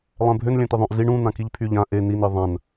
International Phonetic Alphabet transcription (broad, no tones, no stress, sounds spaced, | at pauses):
lˠ ɛ̃ bʱ ø n lʲ ɛ̃ t̪ i ðˤ œ̃ ʔ z i ɳ ũ n̪ ã k i ʎ pʰ y ʎ ã ʔ e n i n i ðˤ ã n